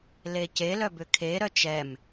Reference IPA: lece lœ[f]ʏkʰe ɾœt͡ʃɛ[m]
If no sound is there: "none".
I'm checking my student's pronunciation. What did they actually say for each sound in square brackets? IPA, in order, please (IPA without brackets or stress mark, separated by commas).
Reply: b, m